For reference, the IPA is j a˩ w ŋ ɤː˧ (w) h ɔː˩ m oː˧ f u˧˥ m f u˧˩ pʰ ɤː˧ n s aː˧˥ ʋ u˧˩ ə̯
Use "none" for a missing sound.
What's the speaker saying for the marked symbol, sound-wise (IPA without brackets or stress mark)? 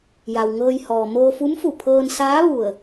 j